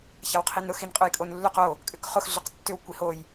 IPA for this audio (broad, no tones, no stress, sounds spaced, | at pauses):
ç a w qʰ i n ɾ ʊ x i n qʼ ʊ j kʼ o n lː ʏ q o | kʼ ʏ k χ ʊ x ɮ ʏ q tː ʏ w kʷ i h o j